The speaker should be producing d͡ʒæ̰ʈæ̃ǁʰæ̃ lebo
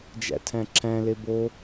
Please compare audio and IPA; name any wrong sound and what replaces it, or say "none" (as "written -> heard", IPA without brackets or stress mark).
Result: ʈ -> tʰ